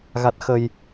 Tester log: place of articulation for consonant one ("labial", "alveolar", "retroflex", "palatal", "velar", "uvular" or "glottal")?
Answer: velar